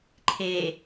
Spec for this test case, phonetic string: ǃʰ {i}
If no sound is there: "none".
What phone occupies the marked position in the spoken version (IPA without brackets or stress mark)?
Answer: e